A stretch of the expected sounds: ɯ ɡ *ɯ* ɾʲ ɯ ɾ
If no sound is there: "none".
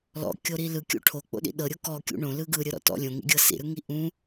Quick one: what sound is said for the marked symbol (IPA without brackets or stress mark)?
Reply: ɯ